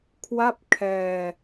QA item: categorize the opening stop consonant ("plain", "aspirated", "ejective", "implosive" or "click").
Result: aspirated